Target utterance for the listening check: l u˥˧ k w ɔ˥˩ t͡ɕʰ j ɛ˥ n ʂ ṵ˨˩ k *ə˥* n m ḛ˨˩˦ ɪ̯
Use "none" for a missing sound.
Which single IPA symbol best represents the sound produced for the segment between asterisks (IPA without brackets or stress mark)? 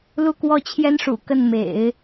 ə˥˩